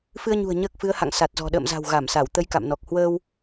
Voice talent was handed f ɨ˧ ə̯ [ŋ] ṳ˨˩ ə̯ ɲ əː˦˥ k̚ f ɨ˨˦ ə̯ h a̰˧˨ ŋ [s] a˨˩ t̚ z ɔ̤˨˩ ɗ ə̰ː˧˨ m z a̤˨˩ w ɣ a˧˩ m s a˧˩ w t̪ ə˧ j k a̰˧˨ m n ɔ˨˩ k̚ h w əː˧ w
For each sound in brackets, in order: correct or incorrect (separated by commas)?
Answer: incorrect, correct